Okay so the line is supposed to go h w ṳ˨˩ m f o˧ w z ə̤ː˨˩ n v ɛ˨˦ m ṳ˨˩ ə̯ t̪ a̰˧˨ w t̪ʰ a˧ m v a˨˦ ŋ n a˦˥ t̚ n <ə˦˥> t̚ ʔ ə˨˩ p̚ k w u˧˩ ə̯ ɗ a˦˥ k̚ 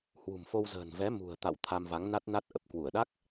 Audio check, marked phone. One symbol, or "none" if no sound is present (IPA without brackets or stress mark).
a˦˥